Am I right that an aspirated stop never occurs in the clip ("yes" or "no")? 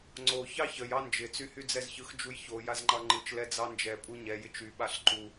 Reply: yes